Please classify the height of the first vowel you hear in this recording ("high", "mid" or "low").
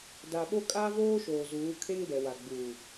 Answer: low